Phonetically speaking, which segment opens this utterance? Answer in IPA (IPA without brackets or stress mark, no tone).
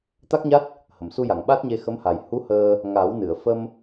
t̪